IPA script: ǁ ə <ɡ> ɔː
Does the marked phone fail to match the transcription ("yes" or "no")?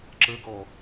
no